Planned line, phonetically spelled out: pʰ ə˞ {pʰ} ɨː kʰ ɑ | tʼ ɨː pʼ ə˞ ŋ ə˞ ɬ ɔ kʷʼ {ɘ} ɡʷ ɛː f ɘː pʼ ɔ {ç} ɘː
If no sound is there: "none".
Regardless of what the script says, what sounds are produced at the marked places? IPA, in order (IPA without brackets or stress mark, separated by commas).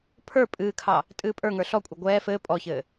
pʼ, ɘ, ç